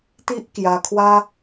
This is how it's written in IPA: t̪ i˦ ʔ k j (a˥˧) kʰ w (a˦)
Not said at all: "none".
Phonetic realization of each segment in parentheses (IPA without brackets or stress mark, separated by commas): a˧, a˦